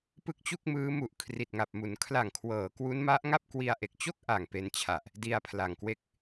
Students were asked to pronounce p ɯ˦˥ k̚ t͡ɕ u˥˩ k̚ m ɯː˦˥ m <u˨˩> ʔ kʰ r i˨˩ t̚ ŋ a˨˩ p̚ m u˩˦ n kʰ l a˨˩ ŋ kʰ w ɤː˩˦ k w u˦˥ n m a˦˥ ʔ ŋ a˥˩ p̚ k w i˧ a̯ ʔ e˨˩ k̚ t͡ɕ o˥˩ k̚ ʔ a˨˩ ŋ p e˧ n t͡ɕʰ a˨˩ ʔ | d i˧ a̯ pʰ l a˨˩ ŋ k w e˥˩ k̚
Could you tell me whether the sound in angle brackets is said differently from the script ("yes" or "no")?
no